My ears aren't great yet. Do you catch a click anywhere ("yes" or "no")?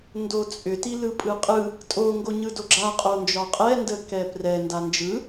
yes